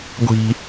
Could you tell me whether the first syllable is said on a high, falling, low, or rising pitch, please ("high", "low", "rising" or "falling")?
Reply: high